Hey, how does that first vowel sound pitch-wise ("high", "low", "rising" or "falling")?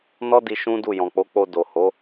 high